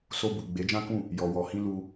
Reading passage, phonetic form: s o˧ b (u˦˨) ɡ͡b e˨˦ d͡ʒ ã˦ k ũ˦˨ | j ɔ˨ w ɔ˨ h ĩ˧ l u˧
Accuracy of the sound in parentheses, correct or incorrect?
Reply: incorrect